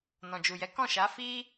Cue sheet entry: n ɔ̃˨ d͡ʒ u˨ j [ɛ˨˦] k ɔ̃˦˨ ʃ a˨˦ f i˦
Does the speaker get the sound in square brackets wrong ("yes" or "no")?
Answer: no